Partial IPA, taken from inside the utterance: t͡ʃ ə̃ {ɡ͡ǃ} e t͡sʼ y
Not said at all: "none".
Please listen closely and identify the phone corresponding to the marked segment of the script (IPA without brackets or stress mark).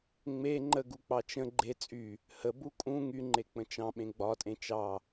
ɡ͡ǃ